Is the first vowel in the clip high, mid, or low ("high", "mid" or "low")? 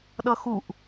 mid